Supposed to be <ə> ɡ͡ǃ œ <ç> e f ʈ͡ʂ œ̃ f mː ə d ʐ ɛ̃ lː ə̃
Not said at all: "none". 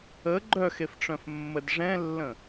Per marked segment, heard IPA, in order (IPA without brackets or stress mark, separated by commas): ə, x